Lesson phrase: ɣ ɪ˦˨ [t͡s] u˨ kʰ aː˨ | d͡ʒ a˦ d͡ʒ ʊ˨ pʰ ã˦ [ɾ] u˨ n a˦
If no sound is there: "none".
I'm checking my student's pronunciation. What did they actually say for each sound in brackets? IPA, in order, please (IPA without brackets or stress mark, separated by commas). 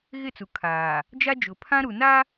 t͡s, ɾ